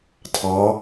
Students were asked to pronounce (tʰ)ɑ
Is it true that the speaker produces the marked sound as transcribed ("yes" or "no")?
yes